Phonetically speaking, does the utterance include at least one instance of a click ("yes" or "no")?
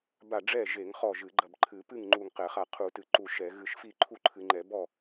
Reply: yes